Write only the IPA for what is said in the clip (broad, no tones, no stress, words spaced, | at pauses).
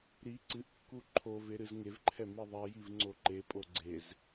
ɾi ǀɨʔkːu ǃʰove ɾɨzŋevǃʰɛ miðˤɛjiv ŋ͡ǀoǃepʼo ɡ͡ǀez